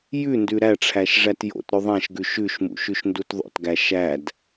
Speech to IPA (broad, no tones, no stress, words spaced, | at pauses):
jʉ ndʉɾæʈ͡ʂʰæʃ ʐætjo̰tɾɵ ðˤæ̃ʃɡʉ ʃʉʃmṵ ʃʉʃndutðˤo̰tɡæ ʃæd